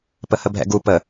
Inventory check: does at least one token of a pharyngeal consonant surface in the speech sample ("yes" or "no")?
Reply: no